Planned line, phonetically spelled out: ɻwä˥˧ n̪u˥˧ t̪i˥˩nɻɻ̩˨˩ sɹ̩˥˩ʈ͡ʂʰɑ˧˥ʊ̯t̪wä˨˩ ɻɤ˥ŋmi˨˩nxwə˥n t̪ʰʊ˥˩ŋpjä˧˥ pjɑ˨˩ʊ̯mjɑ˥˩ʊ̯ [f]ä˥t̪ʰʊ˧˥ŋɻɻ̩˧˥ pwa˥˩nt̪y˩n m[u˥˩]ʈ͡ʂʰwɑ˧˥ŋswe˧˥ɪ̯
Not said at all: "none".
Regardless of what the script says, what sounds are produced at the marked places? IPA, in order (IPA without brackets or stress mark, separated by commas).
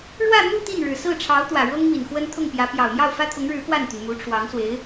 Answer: f, u˧˥